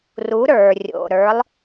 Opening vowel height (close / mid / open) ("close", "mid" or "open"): close